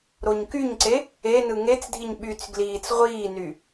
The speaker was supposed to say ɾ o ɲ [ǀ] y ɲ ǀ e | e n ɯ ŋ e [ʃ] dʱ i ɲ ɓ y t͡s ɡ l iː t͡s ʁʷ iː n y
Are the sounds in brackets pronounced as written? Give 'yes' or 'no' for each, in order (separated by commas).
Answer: no, no